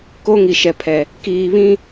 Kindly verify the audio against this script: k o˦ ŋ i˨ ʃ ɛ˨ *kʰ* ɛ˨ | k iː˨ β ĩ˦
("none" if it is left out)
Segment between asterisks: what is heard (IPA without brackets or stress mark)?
pʰ